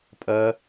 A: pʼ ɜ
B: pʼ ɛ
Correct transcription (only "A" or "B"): A